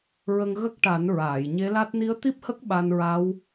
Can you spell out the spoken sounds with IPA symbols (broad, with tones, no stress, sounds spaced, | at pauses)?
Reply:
ɹ ə˧ ŋ ɣ ə˦˥ k̚ ʈ a˨˩˦ n ɹ aː˨˩˨ j ɲ e˧˥ l a˦˥ t̚ n i˧˥ ə̯ t̪ i˦˥ p̚ h ə˦˥ k̚ ɓ a˧ n ɹ a˧˥ w